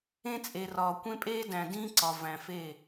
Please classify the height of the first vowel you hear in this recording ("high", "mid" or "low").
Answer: mid